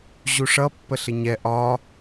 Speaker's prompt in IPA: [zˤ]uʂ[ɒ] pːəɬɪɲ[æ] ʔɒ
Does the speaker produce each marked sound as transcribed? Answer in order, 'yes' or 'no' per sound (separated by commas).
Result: no, no, no